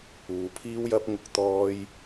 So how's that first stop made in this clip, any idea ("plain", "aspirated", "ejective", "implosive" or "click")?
aspirated